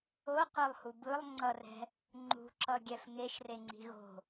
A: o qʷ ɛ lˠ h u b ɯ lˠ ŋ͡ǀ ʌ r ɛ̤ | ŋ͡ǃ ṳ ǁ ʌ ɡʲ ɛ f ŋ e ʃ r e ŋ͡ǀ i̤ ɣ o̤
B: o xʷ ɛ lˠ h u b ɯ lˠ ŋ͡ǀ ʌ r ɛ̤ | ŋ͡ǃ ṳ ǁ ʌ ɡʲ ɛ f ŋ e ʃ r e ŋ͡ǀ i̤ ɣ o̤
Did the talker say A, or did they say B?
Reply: A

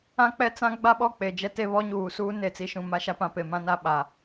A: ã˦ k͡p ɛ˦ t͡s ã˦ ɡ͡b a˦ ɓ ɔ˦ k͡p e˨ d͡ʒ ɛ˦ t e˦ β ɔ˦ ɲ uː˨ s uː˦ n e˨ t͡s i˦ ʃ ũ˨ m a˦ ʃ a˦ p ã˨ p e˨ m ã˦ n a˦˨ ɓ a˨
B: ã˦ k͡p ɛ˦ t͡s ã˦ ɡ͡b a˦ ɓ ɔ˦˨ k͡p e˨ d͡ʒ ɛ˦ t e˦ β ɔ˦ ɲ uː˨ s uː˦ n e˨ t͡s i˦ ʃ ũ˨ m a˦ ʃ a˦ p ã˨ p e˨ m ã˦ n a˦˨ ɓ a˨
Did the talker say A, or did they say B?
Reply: B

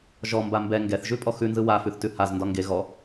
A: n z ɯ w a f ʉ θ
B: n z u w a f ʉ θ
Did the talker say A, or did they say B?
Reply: A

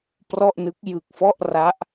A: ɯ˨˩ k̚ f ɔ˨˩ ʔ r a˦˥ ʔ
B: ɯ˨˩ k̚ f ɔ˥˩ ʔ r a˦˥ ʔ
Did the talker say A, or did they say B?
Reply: B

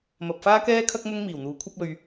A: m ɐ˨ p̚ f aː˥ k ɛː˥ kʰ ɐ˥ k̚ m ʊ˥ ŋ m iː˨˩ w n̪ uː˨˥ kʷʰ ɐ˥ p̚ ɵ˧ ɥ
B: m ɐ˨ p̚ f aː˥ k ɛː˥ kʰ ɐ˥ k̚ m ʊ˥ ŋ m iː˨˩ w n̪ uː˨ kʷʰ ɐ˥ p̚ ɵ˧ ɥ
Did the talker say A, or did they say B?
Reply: A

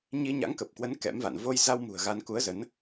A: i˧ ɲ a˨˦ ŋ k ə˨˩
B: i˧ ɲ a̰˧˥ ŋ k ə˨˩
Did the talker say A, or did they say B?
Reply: B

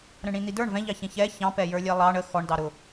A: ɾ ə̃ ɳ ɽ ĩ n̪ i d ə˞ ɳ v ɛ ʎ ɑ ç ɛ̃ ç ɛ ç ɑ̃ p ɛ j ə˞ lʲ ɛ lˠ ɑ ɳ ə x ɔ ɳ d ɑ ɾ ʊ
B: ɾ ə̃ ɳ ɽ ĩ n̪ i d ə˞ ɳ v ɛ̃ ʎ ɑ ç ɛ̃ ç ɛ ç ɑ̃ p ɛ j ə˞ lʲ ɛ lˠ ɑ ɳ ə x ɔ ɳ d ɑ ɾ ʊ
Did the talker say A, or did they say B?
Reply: B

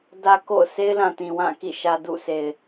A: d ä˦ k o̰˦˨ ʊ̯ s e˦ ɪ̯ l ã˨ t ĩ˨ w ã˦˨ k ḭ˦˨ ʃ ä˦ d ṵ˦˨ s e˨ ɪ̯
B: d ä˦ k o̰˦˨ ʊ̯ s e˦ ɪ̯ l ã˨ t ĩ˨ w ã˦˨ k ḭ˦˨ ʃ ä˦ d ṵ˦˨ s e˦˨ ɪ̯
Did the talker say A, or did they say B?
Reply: A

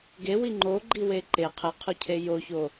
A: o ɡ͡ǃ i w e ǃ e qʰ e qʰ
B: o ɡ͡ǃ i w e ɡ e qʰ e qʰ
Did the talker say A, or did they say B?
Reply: A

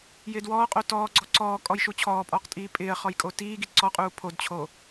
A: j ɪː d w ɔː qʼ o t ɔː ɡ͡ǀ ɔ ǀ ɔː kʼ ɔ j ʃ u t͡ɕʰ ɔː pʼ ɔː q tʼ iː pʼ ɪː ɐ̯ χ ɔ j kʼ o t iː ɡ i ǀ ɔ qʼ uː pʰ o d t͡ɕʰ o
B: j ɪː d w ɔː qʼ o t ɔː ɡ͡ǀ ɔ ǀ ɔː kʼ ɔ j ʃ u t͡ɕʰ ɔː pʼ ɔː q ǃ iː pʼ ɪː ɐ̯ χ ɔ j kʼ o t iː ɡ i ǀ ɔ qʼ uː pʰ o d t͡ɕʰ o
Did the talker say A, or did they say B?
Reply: A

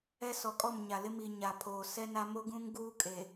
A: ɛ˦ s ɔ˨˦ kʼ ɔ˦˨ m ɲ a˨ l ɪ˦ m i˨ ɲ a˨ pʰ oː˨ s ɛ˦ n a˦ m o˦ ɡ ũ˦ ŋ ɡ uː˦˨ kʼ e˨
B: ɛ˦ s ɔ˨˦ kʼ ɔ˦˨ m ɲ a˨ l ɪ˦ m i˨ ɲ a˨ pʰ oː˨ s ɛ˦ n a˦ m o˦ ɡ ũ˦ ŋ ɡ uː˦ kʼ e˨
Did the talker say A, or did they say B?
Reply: B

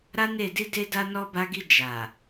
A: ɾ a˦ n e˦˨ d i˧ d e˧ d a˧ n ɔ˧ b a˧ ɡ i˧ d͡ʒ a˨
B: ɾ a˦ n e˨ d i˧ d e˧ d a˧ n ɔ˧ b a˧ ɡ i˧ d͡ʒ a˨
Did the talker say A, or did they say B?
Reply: A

